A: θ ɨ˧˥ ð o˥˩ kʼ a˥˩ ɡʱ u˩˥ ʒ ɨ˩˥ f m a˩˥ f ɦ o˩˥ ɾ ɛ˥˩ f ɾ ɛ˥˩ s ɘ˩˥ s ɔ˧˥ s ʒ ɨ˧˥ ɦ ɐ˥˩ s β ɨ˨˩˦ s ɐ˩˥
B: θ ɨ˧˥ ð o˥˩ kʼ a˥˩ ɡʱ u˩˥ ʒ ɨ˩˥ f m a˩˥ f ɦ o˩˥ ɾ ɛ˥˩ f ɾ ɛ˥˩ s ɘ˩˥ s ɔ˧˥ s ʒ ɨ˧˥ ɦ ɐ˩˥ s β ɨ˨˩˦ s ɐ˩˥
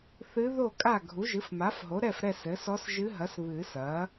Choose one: B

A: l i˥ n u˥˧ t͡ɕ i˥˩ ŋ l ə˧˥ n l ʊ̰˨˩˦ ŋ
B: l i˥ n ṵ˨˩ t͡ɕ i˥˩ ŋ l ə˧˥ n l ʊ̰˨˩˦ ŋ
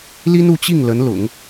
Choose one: A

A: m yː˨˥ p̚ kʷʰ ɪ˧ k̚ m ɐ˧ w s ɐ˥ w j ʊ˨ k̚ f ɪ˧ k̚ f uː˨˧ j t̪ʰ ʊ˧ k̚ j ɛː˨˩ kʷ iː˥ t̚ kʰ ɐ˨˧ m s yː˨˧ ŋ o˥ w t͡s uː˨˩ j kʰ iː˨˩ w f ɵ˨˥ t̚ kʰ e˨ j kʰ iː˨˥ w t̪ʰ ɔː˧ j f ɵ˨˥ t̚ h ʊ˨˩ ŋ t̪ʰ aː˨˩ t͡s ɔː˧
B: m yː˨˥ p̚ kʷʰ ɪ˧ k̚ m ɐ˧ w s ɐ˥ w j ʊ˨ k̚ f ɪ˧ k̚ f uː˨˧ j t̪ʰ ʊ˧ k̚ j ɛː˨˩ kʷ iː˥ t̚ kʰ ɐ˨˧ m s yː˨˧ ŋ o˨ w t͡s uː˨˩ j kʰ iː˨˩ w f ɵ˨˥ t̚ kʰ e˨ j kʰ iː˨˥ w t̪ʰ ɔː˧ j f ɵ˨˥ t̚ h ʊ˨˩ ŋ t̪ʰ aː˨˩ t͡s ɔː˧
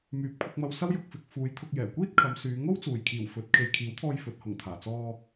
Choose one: A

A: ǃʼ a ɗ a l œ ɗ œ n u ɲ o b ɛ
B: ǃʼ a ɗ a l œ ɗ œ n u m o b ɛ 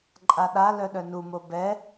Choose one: B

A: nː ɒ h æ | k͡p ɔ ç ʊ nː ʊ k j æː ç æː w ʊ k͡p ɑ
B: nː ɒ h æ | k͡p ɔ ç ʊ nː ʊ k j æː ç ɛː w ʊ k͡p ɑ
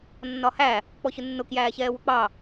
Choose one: B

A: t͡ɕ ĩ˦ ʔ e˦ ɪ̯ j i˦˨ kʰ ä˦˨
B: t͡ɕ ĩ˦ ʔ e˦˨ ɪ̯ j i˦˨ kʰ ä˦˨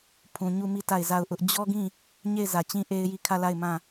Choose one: A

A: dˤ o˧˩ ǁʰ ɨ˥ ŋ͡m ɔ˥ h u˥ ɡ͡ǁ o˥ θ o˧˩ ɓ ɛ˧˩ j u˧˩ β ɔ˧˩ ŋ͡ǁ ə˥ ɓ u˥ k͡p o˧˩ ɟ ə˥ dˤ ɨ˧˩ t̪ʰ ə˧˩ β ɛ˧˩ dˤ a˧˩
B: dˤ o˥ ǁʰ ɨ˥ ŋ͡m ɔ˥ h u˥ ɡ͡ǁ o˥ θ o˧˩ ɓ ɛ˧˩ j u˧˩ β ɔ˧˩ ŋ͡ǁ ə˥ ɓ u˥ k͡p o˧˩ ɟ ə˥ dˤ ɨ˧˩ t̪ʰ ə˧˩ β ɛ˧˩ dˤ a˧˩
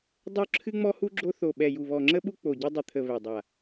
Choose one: B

